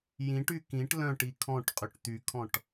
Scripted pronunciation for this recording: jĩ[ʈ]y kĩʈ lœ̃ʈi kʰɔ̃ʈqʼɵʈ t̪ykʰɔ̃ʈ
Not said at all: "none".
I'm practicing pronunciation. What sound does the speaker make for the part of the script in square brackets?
ʈ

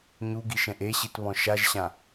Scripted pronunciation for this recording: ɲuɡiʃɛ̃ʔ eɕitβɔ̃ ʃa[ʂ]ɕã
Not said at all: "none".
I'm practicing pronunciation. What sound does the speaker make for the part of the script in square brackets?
ʒ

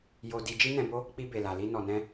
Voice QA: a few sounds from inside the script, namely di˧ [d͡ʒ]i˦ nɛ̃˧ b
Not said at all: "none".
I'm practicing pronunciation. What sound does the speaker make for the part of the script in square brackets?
d͡ʒ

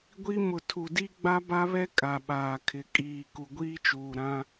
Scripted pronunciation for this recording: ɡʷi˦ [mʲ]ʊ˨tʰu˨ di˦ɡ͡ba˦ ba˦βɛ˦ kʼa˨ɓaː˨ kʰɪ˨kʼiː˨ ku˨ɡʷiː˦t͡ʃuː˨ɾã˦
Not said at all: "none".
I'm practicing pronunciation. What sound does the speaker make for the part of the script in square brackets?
m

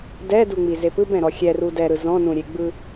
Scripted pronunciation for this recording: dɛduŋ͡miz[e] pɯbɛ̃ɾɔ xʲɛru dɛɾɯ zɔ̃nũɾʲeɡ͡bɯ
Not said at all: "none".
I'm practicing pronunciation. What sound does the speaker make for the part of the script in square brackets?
e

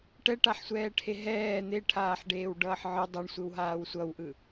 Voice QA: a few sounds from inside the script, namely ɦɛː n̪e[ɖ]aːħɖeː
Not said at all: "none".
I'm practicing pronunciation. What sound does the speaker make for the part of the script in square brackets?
ʈʰ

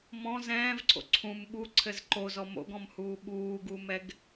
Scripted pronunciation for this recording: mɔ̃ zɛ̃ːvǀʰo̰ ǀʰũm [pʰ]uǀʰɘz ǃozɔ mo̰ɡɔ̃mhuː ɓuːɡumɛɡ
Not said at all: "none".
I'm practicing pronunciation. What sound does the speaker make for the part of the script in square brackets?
ɓ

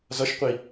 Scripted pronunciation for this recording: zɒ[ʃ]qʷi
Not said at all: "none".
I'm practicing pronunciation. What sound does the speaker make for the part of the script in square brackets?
ʃ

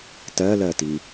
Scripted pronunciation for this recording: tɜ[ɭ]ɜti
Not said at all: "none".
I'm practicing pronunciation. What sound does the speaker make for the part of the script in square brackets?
l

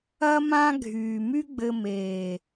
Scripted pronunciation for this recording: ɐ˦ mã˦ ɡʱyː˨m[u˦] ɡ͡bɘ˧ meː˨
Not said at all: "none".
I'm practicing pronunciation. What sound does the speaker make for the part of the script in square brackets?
y˦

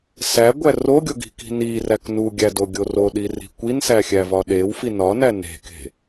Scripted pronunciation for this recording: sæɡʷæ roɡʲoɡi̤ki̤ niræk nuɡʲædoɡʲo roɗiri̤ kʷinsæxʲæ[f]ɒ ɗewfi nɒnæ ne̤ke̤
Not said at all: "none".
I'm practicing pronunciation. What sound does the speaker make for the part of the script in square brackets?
v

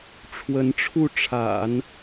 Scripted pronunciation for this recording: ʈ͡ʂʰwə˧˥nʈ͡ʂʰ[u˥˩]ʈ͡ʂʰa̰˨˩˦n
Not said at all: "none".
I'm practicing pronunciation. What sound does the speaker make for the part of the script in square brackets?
u˥˩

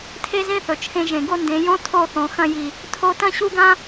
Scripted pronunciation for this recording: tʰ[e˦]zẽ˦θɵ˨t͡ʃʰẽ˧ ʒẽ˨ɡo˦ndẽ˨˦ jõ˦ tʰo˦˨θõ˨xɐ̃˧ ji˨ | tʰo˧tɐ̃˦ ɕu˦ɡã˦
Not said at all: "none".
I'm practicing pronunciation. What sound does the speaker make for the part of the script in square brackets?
e˦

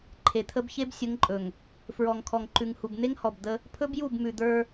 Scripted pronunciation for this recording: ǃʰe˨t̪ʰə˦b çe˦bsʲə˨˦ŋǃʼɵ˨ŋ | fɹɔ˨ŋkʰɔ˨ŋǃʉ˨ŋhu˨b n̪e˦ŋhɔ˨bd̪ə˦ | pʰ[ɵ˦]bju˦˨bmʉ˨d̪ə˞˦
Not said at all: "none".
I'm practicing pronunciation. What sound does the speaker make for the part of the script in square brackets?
ɵ˦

